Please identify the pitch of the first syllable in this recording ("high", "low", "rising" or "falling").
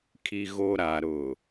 low